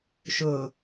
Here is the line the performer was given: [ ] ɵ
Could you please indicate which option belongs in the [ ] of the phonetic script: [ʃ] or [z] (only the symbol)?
ʃ